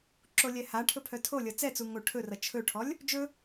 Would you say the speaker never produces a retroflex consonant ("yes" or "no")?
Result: no